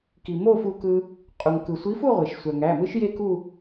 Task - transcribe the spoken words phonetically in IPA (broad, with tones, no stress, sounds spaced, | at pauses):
k i˩ m o˥˧ f u˧ k ɯ˧ | qʼ u˩ ŋ k ɯ˩ sʷ i˨˥ f u˥˧ ʁʷ e˩ ʃ sʷ æ˩ ŋ æ˩˧˩ m ɯ˦˥ ʃ j e˥˧ k u˥˧